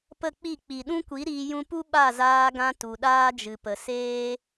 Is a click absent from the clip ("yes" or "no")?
yes